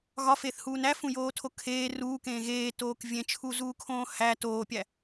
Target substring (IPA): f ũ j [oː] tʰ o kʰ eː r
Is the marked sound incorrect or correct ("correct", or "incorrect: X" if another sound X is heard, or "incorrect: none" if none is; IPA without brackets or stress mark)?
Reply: correct